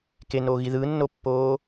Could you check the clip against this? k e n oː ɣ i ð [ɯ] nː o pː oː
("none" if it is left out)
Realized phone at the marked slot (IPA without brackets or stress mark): ɯ